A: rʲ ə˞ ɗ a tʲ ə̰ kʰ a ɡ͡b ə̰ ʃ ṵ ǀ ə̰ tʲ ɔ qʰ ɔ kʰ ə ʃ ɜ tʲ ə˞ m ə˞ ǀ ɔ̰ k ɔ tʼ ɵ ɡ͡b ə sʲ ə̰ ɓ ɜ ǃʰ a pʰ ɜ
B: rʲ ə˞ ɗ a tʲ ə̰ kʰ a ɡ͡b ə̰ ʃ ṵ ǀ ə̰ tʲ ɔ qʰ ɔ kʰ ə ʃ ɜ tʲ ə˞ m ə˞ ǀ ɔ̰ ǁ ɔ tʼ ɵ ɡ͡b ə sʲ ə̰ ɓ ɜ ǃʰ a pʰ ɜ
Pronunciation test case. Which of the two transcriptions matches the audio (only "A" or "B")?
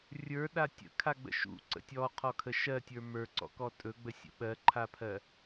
A